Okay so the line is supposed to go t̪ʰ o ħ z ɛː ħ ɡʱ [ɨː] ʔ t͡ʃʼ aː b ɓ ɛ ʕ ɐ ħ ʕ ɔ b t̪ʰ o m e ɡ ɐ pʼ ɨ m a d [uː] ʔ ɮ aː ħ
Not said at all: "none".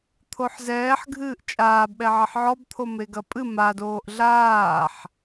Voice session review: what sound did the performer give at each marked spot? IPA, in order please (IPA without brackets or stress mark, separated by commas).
ɨː, oː